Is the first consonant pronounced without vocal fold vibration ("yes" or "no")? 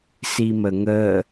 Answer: yes